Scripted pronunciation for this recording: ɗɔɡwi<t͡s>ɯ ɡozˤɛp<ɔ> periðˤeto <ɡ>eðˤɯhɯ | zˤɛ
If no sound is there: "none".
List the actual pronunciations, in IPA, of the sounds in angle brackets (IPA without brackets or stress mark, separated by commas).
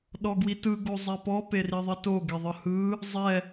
t, ɔ, ɡ